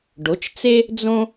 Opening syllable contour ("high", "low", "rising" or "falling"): rising